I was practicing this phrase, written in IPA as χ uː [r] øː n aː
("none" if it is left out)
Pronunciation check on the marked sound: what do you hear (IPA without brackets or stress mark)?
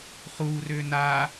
r